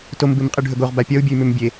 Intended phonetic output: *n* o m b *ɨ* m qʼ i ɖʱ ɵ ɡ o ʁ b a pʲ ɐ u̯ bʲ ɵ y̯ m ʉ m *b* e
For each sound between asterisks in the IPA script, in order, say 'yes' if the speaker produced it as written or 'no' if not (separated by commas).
no, yes, no